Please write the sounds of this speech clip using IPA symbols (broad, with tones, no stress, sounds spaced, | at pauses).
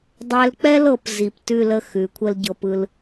dˤ ɛ˧ l k͡p ɛ˥ l ɤ˩˧ p z i˧˩ p t ʉ˥˧ l ə˥˧ x ʉ˩˧ kʷʰ ə˥ l ɟ ɤ˧ p ɯ˧ l